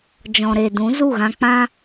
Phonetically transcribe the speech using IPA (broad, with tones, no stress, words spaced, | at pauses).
d͡ʒɔ̃˨ɾe˨dũ˨˦ zu˦˨ɣã˧k͡pã˦